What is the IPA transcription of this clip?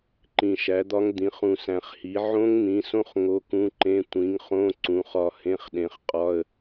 ǃ ĩ˨ ʃ æ˩˥ d̪ ɒ˦˥ ŋ d̪ ĩ˩˥ χ ũ˨ s æ̃˨ χ h i˩˥ ʕ õ˦˥ ŋ n̪ ĩ˩˥ s õ˦˥ χ ŋ o˧˥˧ k ũ˧˥˧ ǃ ẽ˧˥˧ tʷ ĩ˩˥ ŋ χ õ˧˥˧ ǀ ũ˩˥ χ ɒ˦˨ h ẽ˧˥˧ χ ɗ ẽ˩˥ χ qʼ ɒ˧˥˧ ə̯

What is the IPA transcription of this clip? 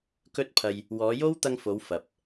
k ɵ˥ t̚ pʰ ɐ˧ j | w ɔː˨˧ j o˥ w t̪ ɐ˧ ŋ f o˨˧ w f ɐ˨ p̚

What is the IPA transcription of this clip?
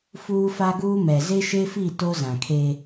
f uː˦ f a˦ ɡ uː˦ m ɛ˨ z e˦ ʃ e˦ f i˦˨ t o˦ z ã˨ kʰ eː˦

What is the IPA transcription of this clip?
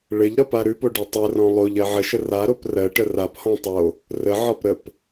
ɭ ɘ ʎ ɾ ɒ p a ɾ ʉ p o ɖ ʉ tˤ ɘ r ɔ̃ lˠ o ʎ ɜ ʕ ə ʃ ə r a ɾ o p r ɜ ʈ ə r a p h ɔ̃ tˤ o | r ə ʕ ɒ p ɾ ə p

